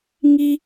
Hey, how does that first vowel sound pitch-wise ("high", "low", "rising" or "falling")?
high